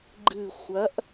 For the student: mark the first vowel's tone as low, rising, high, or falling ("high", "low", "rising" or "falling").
falling